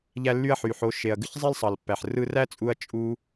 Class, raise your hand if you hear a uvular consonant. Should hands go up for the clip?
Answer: no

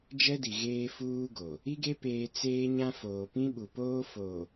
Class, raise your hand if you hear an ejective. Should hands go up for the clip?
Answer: no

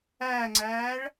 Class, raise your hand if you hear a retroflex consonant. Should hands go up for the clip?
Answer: yes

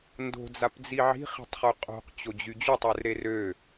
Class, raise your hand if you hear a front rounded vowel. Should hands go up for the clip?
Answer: yes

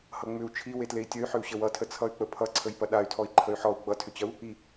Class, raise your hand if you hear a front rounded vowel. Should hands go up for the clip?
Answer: yes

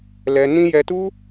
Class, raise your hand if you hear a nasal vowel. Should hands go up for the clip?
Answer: yes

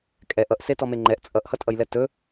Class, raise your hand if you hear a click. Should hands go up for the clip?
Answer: yes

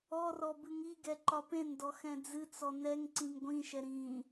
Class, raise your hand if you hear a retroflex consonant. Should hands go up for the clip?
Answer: no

